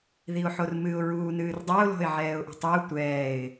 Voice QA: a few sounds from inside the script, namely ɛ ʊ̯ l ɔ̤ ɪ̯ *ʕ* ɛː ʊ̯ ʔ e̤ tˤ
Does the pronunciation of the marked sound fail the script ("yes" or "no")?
no